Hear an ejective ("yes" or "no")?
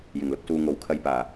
no